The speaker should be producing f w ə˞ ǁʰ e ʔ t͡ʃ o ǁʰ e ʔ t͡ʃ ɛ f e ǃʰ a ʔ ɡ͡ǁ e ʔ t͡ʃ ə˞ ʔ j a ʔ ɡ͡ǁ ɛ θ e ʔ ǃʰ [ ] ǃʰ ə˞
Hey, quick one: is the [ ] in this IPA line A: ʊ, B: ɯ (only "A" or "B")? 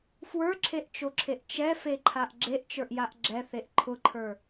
A